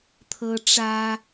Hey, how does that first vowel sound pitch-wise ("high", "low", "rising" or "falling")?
high